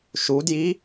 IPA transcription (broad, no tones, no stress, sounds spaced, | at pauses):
ʃ u d j i